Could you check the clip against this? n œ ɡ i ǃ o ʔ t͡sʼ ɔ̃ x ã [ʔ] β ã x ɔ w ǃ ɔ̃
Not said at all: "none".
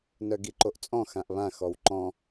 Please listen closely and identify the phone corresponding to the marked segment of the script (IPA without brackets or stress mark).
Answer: ʔ